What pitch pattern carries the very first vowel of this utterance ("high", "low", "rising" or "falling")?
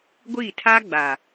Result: falling